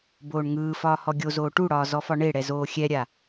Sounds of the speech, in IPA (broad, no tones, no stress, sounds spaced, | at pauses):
b oː ɳ ŋ ɯː f ɒː h ɔ ɡʲ o z oː ʈ u ɽ ɒː z ɔ f ɒ ɳ e ɽ ɛ z oː xʲ ɛ ɾʲ a